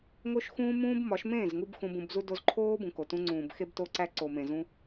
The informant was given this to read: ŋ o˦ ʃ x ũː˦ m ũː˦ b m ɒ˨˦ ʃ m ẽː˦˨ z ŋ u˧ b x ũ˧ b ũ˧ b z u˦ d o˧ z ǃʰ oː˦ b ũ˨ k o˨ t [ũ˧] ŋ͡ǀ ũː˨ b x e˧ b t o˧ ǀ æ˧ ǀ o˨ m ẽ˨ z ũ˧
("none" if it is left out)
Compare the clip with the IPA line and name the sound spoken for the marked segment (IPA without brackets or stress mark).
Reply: ũ˧